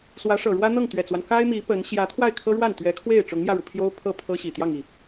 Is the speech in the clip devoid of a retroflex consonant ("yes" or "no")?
no